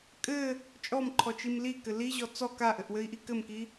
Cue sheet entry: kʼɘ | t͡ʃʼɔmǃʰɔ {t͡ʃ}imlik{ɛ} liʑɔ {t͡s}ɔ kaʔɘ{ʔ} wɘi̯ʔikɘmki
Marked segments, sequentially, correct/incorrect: correct, incorrect: ɘ, correct, correct

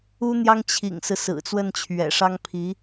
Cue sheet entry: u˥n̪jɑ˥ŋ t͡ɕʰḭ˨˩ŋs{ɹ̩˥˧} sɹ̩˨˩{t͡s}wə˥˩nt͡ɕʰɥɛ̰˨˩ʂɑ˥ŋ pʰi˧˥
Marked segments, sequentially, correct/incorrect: incorrect: ɹ̩˦, correct

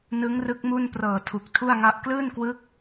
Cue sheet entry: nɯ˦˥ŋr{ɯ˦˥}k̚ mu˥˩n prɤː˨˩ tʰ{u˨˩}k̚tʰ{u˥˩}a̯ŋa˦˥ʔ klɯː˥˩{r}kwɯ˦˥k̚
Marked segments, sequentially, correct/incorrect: correct, correct, correct, incorrect: n

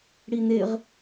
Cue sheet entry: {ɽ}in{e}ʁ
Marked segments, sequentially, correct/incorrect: correct, correct

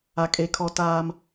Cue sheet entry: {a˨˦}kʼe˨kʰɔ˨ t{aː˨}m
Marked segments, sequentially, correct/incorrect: incorrect: a˨, correct

